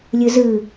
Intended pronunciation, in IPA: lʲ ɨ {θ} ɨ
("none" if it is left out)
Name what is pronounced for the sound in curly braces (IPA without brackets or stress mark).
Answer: z